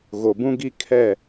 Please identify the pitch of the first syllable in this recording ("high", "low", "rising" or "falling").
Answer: low